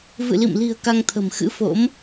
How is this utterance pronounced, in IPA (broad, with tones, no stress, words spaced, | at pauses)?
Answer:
vɨ̰˧˨lḭ˧˨mli̤˨˩ə̯ ka˧ŋt̪ʰə̤˨˩mxɨ̰˧˥fo̰˧˥m